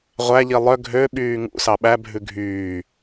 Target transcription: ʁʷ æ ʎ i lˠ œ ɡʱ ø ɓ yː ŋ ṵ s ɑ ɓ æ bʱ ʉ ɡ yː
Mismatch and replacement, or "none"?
ɡ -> ɡʱ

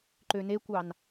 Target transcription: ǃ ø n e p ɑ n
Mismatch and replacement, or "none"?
p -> kʷ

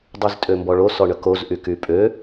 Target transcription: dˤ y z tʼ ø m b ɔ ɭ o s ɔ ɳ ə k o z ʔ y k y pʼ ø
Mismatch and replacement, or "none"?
none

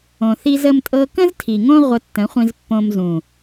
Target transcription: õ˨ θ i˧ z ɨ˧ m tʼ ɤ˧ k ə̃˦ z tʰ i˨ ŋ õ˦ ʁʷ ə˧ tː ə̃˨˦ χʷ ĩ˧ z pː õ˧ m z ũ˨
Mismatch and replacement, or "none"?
ɨ˧ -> ə˧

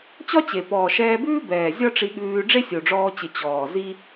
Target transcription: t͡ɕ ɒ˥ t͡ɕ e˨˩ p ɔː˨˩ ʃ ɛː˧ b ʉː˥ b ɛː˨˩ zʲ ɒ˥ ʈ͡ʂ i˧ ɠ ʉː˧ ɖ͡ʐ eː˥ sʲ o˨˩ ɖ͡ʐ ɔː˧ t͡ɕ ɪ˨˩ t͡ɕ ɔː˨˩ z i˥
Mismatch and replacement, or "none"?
eː˥ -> e˥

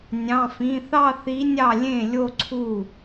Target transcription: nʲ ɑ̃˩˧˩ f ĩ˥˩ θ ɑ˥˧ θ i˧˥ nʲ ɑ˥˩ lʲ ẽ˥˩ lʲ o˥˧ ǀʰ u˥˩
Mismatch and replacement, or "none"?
ĩ˥˩ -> ĩ˩˧˩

